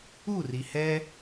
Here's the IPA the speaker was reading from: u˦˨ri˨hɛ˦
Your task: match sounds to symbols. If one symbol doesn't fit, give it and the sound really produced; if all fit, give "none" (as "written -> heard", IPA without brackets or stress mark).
none